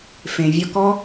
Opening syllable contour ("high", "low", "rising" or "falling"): low